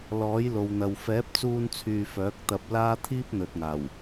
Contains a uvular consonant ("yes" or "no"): no